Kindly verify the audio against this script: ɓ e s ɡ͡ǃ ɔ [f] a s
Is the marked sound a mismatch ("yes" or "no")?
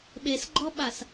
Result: yes